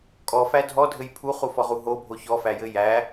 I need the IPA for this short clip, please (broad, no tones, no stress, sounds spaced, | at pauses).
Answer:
kʼ ɔ f æ dʱ ɔ dʱ ɘ j pʰ u χ u f ɔ ʁ u ɦ o bʱ o ç ɔ f æ j ɘ j æ